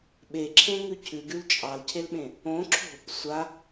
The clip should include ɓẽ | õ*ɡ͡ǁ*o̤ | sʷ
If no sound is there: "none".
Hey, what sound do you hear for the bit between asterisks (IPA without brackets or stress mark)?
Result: ǁʰ